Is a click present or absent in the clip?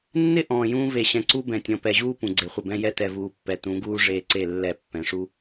present